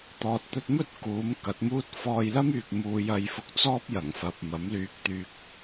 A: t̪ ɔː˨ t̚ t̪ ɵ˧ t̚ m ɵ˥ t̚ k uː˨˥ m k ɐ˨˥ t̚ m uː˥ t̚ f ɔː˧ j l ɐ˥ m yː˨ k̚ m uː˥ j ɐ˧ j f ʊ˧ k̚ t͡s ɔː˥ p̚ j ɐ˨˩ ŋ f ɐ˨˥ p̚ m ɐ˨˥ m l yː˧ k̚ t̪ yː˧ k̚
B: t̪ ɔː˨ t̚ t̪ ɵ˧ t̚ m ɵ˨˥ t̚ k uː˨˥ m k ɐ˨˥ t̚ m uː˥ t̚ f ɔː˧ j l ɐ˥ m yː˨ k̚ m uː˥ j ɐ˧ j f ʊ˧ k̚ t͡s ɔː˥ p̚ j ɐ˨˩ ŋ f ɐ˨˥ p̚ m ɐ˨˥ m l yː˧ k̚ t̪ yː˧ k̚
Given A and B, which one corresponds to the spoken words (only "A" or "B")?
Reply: A